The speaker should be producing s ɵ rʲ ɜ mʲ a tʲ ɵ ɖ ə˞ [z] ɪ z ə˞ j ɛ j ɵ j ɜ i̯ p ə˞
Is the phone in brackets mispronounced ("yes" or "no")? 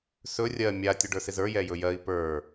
yes